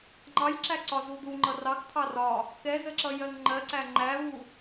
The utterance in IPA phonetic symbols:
ŋ͡ǃɑjǁæ ǀɒzud̪u ŋ͡ǃʌrɑk t̪ʰɑrɒ | kɛzəǁʌ jɜŋŋ͡ǃɜǀæ ŋ͡ǃæβu

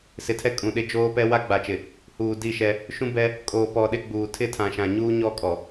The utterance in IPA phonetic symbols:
sɪ˨tʰɛ˦kʼũ˨ɗɪ˦ d͡ʒoː˦pɛ˦ wa˦ɡ͡ba˨t͡ʃɪ˨ | huː˨di˦˨ʃɛ˦ | ʃũ˦bɛ˦ | kʼoː˨pɔ˨ɗɪ˦ɡ͡buː˨ tʰɪ˦˨tʰã˨ʃã˨ɲuː˦ ɲɔ˦kʼɔ˨

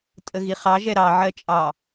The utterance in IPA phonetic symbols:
tʼəɣiχɑ ʒɛɾɑ ʕɜt͡ʃʼɑ

